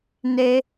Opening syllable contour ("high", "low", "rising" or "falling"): high